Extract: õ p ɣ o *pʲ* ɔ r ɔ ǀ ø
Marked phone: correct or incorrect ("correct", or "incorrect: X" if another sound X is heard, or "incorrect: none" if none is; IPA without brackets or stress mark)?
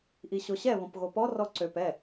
incorrect: p